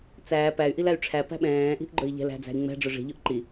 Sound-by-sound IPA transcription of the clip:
t͡s æː p æ y̯ ʔ i l æ y̯ ʈ͡ʂʰ æ p æ̤ ɓ ɛ̃ː ʔ i̤ ʔ ɡ͡ǃ ɵ i̯ ʎ ɛ̤ l æ̤ d͡z æ̤ i̯ ŋ͡m ɛ̤ ɖ͡ʐ ɵ ʐ i̤ ʎ ɵ ʔ ǃ i

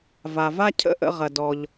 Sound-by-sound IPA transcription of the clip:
v a˩ v a˥ cʰ ə̰˥ ʔ ə̰˧ ʁ ɐ˩ d ɔ˩ ʎ

